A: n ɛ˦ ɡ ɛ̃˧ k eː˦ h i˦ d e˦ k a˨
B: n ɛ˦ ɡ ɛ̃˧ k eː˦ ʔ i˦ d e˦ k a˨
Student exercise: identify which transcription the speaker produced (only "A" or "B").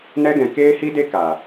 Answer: A